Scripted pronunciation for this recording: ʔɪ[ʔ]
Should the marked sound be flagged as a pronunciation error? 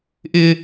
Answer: yes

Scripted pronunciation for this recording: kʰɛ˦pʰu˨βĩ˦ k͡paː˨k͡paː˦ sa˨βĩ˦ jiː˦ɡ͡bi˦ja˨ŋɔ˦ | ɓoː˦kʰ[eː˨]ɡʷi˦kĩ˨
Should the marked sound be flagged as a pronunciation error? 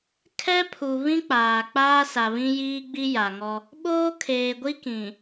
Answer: no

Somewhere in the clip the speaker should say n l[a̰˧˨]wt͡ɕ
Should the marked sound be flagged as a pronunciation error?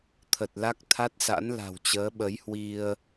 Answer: yes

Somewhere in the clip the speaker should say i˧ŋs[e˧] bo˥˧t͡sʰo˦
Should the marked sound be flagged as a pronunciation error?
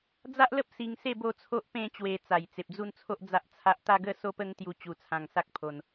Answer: yes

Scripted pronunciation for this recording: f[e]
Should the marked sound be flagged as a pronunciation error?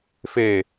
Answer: no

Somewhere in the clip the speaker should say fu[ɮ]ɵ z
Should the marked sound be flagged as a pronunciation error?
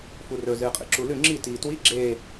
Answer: yes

